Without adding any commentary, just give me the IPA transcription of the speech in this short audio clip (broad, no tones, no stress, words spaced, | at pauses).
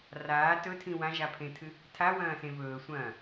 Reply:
raː tɵtʰĩ wãʒapʰẽtʰɨ | tʰawɐ̃ːsẽ vɵːsʷɐ̃ː